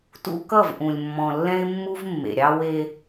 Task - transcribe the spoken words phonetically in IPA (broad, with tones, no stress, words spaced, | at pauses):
tṵ˦kʌ˦˨vʔũ˨lʲ mːɔ̃˨lːɛ̃˦ɪ̯mːu˦v mːḛ˨ɾʲɑ˦ we˦